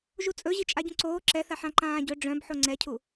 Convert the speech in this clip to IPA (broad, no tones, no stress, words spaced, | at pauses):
ʒut͡sʼɵ ʑit͡ʃʼaɟũǀoː ǁɛθaħã ǃãːɟɵ ɖ͡ʐœ̃bħo ŋ͡ǀɛcʰu